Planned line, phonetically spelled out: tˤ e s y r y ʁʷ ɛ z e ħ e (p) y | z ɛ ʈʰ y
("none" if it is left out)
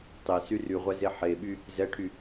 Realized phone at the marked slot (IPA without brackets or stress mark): ɓ